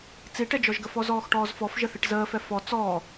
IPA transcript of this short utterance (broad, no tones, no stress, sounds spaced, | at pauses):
t͡s i ʈ ɛ d͡ʒ ɔ ʒ ɡ ə f ɔ z ɔː x ʈ ɔː z f ɔ f ʒ ə θ i ʈ z əː f ɛ f ɔ t͡s ɔː